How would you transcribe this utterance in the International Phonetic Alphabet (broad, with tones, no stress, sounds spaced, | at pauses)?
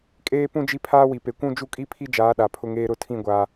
kʼ eː˦ p ũ˦ d͡ʒ i˦ pʰ aː˦ w i˨ p e˨ kʷ ũ˦ d͡ʒ u˦ kʼ i˦ pʰ i˦ d͡ʒ aː˨˦ ɗ a˨ pʰ ʊ˦ ŋ eː˦ ɾ ʊ˦˨ tʰ ĩ˦˨ ɡʷ a˨